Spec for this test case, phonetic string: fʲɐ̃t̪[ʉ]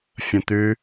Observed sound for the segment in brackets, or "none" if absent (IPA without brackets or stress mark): ʉ